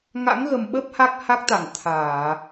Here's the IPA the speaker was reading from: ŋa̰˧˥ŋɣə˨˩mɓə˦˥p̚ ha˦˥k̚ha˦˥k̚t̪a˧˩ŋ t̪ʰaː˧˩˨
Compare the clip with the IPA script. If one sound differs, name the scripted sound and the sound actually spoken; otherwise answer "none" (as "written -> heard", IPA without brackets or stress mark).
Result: none